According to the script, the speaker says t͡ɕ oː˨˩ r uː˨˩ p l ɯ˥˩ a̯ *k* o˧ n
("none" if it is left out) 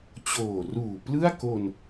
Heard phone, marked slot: k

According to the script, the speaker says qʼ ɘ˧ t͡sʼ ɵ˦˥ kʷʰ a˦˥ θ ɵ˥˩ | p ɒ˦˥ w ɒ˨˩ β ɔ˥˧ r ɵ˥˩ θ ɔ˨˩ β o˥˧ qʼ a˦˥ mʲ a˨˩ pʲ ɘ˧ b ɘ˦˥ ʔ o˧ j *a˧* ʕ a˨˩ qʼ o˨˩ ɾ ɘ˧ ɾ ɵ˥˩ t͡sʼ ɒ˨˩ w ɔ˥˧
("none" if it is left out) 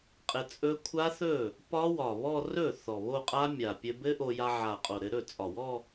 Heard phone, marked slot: a˧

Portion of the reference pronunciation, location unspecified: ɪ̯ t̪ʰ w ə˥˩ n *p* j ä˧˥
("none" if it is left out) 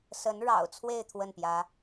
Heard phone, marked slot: p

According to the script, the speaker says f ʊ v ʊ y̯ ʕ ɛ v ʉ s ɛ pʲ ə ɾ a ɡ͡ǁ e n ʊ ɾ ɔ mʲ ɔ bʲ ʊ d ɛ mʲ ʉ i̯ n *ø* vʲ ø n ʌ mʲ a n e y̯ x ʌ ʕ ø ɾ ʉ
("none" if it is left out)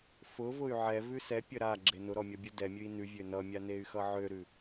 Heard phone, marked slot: ʉ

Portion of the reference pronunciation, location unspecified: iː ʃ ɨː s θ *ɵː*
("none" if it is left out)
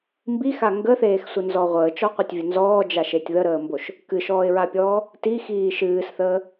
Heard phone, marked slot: əː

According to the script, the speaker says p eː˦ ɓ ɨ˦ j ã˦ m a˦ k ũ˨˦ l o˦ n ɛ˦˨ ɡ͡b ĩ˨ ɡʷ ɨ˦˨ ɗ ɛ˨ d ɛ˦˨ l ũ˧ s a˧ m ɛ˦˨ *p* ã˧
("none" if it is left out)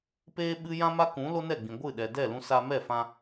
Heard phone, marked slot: f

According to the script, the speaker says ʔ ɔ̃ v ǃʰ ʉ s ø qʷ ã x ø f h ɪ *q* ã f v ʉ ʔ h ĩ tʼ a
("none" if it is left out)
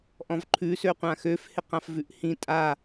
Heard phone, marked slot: q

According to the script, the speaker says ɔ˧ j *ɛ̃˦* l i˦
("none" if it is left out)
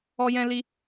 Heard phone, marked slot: ɛ̃˦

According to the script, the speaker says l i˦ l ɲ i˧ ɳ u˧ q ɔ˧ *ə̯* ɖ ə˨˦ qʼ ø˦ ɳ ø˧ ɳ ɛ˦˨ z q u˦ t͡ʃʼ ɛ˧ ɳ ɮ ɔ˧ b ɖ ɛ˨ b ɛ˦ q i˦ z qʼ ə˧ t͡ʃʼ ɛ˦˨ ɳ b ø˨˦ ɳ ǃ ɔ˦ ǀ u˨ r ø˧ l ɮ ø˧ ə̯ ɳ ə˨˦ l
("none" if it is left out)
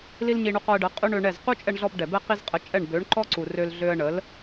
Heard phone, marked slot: ə̯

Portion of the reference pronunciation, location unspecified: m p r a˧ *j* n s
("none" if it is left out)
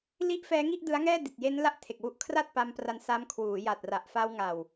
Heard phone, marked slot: none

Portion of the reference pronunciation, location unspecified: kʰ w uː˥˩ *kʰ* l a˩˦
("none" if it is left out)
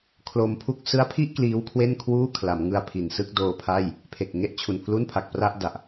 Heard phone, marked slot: kʰ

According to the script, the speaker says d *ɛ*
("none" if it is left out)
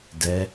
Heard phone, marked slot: ɛ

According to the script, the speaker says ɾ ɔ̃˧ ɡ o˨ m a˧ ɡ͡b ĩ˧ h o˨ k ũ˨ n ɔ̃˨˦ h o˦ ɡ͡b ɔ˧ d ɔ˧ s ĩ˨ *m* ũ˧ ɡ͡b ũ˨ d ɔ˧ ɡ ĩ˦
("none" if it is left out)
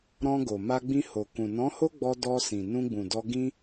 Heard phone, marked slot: n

